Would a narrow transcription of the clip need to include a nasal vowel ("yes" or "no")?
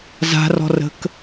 no